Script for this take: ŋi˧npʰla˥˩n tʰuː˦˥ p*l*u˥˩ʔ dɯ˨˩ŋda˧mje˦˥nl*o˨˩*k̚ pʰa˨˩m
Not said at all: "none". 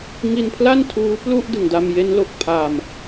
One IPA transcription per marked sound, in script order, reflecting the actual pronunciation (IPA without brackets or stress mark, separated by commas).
l, o˨˩